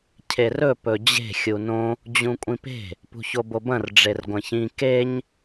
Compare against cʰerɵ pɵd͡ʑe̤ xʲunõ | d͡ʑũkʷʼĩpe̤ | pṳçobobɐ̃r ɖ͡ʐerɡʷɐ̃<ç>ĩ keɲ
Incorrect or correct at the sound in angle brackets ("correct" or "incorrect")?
correct